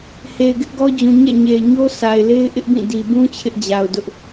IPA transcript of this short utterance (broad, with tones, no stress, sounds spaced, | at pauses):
h e˨ ɪ̯ ɡ ɪ˦ ʔ ɡ ɔ˦ d͡ʑ ũ˨ ɲ ɛ̰˦˨ ɲ e˨ ɪ̯ ɲ o˦ s a˨ ɪ̯ l e˦ ɪ̯ ʔ ɪ˦ ʔ b ĩ˦˨ d i˨ b ũ˦ t͡ɕʰ ɪ˦ ʔ d͡ʑ a˨ ʊ̯ d ʊ˦ ʔ